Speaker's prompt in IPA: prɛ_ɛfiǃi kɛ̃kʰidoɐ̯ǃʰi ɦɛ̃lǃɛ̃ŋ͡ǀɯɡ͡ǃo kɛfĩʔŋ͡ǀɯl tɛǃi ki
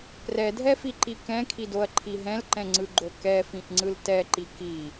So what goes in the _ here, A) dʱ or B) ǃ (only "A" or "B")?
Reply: A